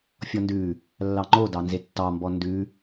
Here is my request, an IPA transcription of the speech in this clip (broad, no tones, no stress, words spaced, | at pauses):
fʲɔndʉ | lːɑŋ͡ǃo dɑnzetːɑmbɔ ndʉ